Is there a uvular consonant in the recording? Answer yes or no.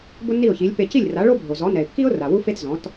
no